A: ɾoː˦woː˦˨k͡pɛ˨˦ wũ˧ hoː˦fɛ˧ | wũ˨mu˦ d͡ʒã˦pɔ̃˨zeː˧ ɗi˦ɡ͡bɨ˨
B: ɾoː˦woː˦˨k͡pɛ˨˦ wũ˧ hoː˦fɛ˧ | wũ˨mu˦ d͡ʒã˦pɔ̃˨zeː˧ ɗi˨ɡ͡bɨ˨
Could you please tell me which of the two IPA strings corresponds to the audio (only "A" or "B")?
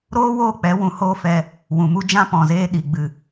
B